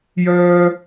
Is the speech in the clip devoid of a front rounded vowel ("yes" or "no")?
no